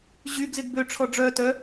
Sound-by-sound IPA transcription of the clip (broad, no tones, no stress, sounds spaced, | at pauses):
ʑ y ɡ z ɪ ɡ b ø ʈ͡ʂʰ ɔ ɖ͡ʐ œ t œ